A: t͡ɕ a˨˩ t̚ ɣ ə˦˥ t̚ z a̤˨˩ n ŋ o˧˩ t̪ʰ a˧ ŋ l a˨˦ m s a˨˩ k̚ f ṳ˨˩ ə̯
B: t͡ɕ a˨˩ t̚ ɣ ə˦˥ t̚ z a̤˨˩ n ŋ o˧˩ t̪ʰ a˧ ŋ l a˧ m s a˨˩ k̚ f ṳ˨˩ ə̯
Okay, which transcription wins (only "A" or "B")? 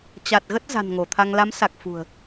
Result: A